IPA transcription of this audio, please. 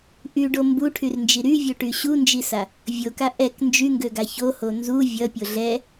ʔ y ɖ o m b u ʈʰ y r n d͡ʒ i ɾ y vʲ o ʈ y ɕ u n d͡ʒ i s a | vʲ o k a ʔ ɛ k n d͡ʒ y ŋ ɡ ø ɡ a ç o h o n z u vʲ ʌ pʲ o ɮ ɛ

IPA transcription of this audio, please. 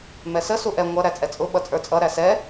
m ɛ s ə s u ʔ ɛ ŋʷ ʌ ɾ æ t͡sʼ ɛ t͡sʼ ʊ ɓ ʌ t͡sʼ ə˞ t͡sʼ ʌ ɾ æ s ɛ

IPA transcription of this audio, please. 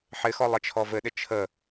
ħ ɪ x ɔ lˠ ɪ t͡ʃʰ ɔ v ɘ ɗ ɪ t͡ʃʰ ə

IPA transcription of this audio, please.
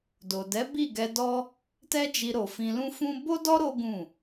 d o˨ d ɛ˨˦ b i˦˨ ɡ ɛ˧ d ɔ˦ | t ɛ˦ d͡ʒ i˧ ɾ o˨ f ĩ˧ l ũ˦ f ũ˦ b o˦ d ɔ˦ ɾ o˦ ɡ ũ˦˨

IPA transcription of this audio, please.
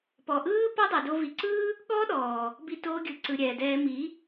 p ɔ˨ ʔ ɯː˦ p ɔ˦ dˤ ə˞˨ d o˧ v i˨ ǀ ɯː˦ | ɠ ɔː˦ ɗ ɔː˨ | b i˧ t oː˧ ɡʲ ɯ˨ ǀ ɯ˨ ɾʲ ɛː˨ d ɛː˧ m i˨˦

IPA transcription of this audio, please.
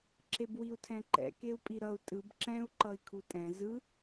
ǁ e b w i u̯ tʰ ɛ̃ ǃ ɛ̰ k e u̯ pʼ i ɾ ʌ u̯ tʼ ɯ b ǁ ɛ̃ u̯ ǃ ʌ i̯ kʰ u tʼ ɛ̃ z ɯ

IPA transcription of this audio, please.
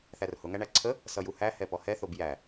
θ æ r h ʊ ŋ æ ɳ æ ǀʰ ə | s ʌ j u h æ h ɛ p ɔ h ɛ θ o b j æ

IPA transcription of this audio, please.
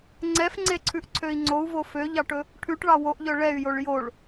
ŋ͡ǀ ɛ f ŋ͡ǀ e ǀʰ ʉ ʔ ǀʰ ø i̯ ŋ͡ǀ o u̯ v o f ø ʎ ɑ ʈ ɵ | ʈʰ ʉ ʈ ɭ ɑ w o ʔ ʎ œ ɭ ɛ y̯ j o ɭ j o ɭ

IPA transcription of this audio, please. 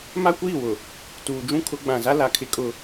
m a˦ kʷ iː˦˨ w ʊ˨ | t uː˨ d͡ʒ ũ˦ kʰ ʊ˨˦ ɡ͡b ã˨ z a˦ l a˨ kʰ ɪ˦ kʼ ʊ˦

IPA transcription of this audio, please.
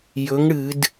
j ɵ˩˥ ŋ ɽ ɨ˧˩˧ d

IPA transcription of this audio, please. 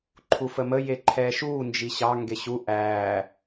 ǃʰ u f ə m ə j e ǃʰ ɛː ʃ uː n d͡ʒ i ɕ ɑ ŋ ɡ e ɕ u ʔ æː

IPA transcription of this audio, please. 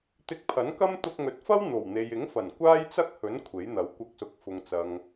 t̪ ɪ˧ k̚ pʰ ɐ˨˥ n k ɐ˥ m t̪ ʊ˧ k̚ ŋ ɵ˨ t̚ f ɐ˥ w n̪ o˨˩ w n̪ e˨ j ɪ˨˥ ŋ f ɐ˨˩ n kʷ aː˥ j t͡s ɐ˥ k̚ h ɵ˨˥ n kʷʰ e˨˥ j n̪ ɐ˨˥ w kʷ ɐ˧ k̚ s ʊ˨˥ k̚ f ʊ˨ ŋ t͡s ɐ˨ ŋ

